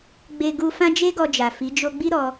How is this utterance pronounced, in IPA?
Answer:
ɡ͡be˧ ɡu˧fã˦ d͡ʒe˦ɡɔ˧d͡ʒa˨ fi˨˦ d͡ʒo˧ɡ͡bi˦ɾɔ˧

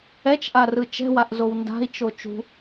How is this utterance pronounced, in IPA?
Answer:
ɛt͡ʃʔa rɯt͡ʃɛ̤waʔ zownda̤i̯t͡ʃo t͡ʃṳ

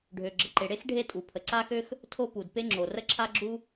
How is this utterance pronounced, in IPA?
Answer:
ɖʱø˩ ɡ͡ǁə˩ǃe˩ɽe˥x ɖʱe˥tʼu˩ pʰə˩ǀa˥xø˥x | tʰo˥pu˩d pe˥ŋ͡ǁo˩ rə˥ǁʰa˥ɡ͡ǁu˥

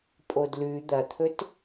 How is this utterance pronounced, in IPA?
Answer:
pʼodlʉ d̪ɐt̪ʰɵt

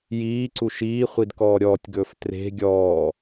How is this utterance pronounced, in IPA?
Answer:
jiːǀu ʃiːχʷid kɔːɾʲɔːtʲɡɵːf tre̤ ɡʲɔː

